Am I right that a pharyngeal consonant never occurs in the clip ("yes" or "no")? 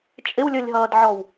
no